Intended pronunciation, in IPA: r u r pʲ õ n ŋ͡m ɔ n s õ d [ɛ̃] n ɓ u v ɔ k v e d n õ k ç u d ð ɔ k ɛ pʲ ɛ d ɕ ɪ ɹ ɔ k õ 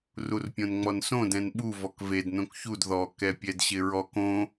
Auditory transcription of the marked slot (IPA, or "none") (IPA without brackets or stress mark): ɛ̃